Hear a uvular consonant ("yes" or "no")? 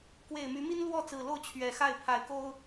no